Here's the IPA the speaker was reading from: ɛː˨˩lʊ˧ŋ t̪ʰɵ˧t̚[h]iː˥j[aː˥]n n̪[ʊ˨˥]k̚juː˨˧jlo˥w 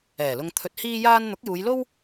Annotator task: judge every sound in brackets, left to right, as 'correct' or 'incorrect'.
correct, correct, correct

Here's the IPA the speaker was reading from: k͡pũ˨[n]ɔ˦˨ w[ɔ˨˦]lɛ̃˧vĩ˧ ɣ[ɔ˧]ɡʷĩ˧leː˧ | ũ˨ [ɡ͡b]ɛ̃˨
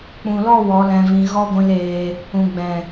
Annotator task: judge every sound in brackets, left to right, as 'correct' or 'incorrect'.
incorrect, correct, incorrect, correct

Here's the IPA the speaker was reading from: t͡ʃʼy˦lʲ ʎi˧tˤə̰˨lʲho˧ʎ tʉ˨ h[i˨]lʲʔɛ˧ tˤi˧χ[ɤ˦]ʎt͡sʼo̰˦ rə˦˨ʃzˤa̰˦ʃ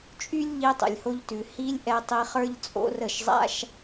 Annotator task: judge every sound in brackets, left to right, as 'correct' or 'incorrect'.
incorrect, incorrect

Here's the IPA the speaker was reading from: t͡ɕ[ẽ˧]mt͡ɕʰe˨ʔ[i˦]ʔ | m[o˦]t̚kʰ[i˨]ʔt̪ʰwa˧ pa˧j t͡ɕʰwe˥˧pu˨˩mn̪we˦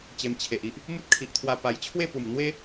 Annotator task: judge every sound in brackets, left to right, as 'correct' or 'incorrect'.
incorrect, correct, incorrect, correct

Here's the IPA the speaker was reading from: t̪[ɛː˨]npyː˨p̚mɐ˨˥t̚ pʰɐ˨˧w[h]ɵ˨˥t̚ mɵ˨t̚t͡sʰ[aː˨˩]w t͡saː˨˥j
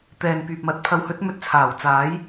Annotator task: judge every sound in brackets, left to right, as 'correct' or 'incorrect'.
correct, correct, correct

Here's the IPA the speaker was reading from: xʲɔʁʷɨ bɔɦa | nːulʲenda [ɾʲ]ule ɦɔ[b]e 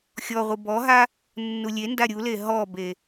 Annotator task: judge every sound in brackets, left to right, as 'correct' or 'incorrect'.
correct, correct

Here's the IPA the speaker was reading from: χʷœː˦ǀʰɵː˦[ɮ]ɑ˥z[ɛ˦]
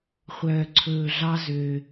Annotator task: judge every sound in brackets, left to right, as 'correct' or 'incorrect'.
correct, incorrect

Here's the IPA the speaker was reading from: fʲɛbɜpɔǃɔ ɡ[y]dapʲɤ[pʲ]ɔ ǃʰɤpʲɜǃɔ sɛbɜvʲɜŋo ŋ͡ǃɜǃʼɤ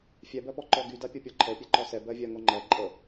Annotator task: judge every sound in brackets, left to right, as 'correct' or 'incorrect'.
correct, correct

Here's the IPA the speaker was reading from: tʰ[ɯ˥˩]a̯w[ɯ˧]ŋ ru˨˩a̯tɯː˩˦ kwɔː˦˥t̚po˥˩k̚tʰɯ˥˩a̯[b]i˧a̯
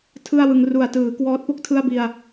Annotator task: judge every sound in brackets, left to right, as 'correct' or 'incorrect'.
correct, correct, correct

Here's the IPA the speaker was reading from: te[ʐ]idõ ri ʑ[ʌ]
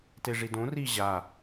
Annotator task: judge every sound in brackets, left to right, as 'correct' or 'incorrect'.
correct, incorrect

